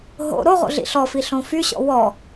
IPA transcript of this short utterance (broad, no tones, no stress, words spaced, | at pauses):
ɦo̰ ɾoʁo̰ ɮḭɬɔfi ɬõfyɕɔ̰ wɔ